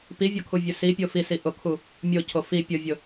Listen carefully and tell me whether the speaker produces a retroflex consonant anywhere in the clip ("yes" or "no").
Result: no